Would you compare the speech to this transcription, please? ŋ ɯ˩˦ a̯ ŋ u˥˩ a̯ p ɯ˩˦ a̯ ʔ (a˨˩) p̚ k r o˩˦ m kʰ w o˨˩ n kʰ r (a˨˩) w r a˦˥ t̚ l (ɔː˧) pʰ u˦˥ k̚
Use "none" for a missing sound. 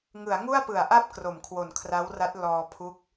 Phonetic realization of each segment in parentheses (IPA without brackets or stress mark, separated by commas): a˥˩, a˦˥, ɔː˧